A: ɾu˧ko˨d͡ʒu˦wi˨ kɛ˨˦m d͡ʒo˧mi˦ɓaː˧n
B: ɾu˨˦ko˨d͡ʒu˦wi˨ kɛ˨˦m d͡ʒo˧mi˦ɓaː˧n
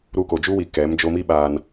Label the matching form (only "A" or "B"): A